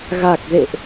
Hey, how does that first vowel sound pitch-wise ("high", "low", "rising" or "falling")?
low